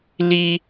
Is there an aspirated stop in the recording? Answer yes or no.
no